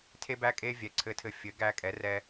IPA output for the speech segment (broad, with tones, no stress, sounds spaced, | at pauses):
tʰ e˧ b æ˧ kʼ e˧ vʲ ɛ˩˥ ǀʰ ɘ˧ tʰ ɘ˧ fʲ ɘ˩˥ ɡ æ˧ kʼ ɛ˩˥ r ɛ˧